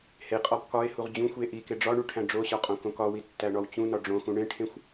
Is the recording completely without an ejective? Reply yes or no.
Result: no